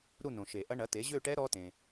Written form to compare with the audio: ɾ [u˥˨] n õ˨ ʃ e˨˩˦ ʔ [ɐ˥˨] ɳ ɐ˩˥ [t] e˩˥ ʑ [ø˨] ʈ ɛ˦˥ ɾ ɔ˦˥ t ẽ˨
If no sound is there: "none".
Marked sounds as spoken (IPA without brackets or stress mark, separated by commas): u˥˨, ɐ˦˥, t, ø˥˨